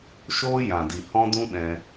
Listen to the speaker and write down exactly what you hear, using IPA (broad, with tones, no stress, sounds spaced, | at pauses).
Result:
ʃ oː˦ j ã˨ d i˨ h ɔ̃˦ d ũ˦ ɗ ɛ̃˧